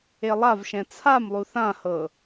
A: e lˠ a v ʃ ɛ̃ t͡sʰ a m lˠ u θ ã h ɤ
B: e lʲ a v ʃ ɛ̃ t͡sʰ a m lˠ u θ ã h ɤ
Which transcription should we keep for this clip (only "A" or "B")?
A